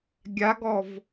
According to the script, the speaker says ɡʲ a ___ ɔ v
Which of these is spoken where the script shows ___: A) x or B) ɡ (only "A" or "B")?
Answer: B